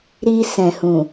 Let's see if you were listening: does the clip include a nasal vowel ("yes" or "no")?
yes